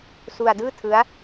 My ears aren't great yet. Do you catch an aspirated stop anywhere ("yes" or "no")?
yes